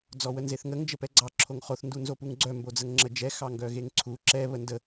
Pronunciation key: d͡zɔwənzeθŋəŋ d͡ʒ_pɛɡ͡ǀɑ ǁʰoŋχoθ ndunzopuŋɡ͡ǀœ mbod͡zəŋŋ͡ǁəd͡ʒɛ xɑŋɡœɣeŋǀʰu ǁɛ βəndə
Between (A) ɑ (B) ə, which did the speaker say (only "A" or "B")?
B